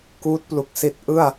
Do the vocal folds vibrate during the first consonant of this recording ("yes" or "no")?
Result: no